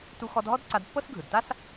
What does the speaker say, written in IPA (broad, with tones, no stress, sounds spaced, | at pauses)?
t u˧ x ɔ˧ d ɦ ɔ˥ d ǀ a˧ d pː ɤ˥ s ɡʱ ɯ˩ d t a˥ s